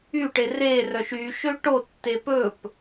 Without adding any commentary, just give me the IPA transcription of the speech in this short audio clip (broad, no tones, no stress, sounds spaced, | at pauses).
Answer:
y ʈ e r e r œ ʃ y ʃ ø ʈ o tː e p ɵ p